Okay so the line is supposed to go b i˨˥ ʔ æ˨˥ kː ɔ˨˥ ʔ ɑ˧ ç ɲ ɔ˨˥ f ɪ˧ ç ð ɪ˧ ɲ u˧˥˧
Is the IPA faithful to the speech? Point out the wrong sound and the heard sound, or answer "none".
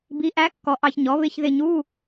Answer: f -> β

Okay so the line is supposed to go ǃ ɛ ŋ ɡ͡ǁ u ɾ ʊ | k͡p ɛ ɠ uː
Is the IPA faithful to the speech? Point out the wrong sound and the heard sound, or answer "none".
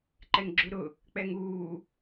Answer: ɠ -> ŋ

